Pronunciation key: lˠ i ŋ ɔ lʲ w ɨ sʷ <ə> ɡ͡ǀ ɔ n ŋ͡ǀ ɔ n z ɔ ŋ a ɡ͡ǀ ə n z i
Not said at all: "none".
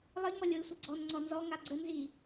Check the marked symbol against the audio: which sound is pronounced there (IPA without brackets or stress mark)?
ɨ